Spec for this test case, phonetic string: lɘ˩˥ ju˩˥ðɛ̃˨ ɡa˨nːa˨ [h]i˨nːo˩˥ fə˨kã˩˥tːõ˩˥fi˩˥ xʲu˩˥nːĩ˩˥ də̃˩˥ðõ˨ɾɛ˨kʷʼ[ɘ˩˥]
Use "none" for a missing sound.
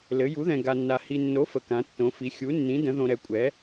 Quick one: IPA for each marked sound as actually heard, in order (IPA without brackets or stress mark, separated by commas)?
h, ɛ˩˥